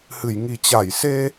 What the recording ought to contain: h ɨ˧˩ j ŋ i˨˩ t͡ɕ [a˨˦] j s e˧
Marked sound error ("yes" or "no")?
yes